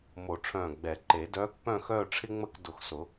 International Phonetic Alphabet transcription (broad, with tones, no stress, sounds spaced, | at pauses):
m o˨˩˦ ʈ͡ʂʰ œ̃ː˧˩ ɡ͡b ɛ˨˩˦ ǃ e˨˩˦ d œː˧˥ k p œ̃˥˧ x œː˥˧ ʈ͡ʂʰ ɪ˥ ŋ͡m ə˥˧ k d ʊ˧˩ x s ʊ˨˩˦